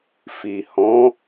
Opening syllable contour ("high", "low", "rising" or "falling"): low